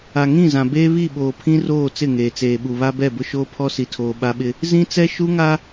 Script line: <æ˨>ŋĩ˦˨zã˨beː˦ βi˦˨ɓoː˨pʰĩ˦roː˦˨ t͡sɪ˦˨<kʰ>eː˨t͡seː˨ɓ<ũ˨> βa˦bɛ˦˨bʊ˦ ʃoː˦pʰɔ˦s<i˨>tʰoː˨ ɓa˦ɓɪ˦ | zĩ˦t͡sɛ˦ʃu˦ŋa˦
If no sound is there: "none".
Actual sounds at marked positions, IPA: a˨, ŋ, u˨, i˨

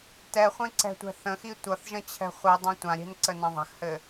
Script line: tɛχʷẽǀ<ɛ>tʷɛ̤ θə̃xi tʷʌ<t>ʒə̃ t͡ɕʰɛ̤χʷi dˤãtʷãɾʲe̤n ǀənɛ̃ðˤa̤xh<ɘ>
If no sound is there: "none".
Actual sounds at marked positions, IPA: ɛ̤, θ, ɘ

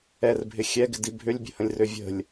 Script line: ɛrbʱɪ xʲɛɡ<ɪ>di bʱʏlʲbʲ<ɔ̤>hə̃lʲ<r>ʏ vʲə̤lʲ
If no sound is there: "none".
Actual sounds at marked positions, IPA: ɪ, ə̤, r

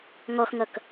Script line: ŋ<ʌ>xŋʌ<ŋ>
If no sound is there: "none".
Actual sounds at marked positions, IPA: ɔ, k

